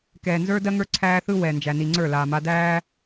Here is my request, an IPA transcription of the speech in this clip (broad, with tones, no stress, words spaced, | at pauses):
kɛː˨nzə˞˦dɜ˦ŋə˞˦ ǀʰæː˦θɯ˦ wɛ˨nd͡ʒæ˨ni˨ŋ͡ǀə˞˦˨ laː˨ma˦ dæː˦